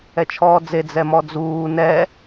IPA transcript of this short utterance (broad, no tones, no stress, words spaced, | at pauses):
ɛt͡ʃʰɔːd͡ze d͡zɛmɔd͡zuː nɛ